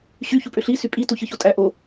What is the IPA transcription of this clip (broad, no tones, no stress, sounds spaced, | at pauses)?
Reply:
ɕ y ç u pʼ ø ɬ i s y pʼ i t u ç ɯ ç o tʼ æ ʔ o